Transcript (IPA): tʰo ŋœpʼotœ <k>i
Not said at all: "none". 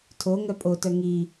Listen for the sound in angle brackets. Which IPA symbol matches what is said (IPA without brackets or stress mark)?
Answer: ŋ